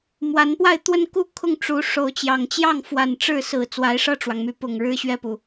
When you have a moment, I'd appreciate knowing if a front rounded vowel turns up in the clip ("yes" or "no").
yes